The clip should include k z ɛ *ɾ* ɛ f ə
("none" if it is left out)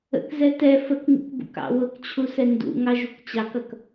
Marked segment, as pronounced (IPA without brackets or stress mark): t